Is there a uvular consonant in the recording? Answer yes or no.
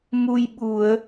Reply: no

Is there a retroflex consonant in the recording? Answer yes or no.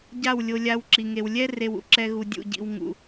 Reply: no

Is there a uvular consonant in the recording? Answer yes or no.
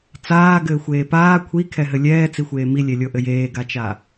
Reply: no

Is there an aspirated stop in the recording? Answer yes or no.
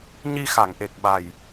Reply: no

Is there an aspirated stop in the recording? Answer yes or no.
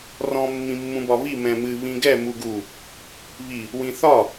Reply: no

